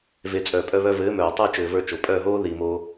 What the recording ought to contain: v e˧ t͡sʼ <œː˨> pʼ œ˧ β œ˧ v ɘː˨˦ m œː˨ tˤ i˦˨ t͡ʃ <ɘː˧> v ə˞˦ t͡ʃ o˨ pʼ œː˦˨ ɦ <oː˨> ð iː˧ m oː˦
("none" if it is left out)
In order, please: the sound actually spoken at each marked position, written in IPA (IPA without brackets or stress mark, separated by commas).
œː˨, ɘː˧, oː˦